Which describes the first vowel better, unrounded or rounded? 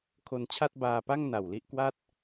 rounded